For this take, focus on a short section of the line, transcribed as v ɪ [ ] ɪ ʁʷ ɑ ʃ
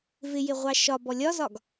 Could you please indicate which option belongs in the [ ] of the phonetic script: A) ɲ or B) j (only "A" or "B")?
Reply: B